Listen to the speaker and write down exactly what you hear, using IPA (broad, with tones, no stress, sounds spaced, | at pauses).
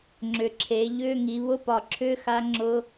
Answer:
ŋ͡ǁ ʏ˩˧ ǁʰ e˩˧ ʎ ʏ˧˥˧ ŋ i˩˧ β ʊ˧˥˧ p ɒ˨˩ ǁʰ ʏ˧˥˧ x a˦˥ ŋ͡ǁ ʊ˦˥